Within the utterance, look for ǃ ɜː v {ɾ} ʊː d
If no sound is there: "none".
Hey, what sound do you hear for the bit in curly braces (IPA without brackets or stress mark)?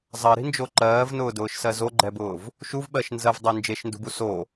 n